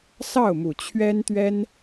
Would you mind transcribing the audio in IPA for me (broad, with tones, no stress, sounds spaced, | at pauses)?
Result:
s ɑ˥˩ ʊ̯ m u˨˩ t͡ɕʰ ɥ ɛ˥ n t̪ ɥ ɛ˥ n